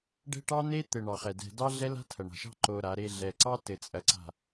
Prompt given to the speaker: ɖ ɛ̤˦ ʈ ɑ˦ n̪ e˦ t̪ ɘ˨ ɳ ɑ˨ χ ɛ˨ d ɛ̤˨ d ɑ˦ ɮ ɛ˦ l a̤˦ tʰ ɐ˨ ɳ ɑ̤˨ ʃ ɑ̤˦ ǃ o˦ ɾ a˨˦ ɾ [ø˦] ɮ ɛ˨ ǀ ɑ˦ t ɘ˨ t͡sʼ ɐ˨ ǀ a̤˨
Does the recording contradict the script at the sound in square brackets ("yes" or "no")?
yes